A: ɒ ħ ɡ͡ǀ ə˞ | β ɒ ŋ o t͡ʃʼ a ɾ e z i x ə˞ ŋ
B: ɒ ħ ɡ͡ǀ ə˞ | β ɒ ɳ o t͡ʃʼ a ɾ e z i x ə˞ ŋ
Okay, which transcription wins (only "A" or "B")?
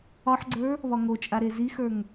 A